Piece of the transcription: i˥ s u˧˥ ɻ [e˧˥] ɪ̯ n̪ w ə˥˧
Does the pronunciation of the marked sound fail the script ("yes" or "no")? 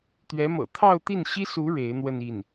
no